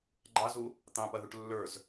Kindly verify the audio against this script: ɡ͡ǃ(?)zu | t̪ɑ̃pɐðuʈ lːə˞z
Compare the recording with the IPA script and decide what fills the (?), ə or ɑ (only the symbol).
ɑ